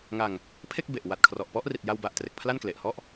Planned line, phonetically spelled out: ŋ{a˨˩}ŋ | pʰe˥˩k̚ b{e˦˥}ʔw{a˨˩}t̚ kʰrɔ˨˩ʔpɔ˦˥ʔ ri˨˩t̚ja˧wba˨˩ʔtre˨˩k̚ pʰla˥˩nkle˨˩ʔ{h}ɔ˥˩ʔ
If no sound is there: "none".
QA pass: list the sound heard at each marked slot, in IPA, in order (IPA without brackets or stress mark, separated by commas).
a˧, e˨˩, a˨˩, h